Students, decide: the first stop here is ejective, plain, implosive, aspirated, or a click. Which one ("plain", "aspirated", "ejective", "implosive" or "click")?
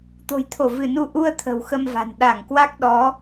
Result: plain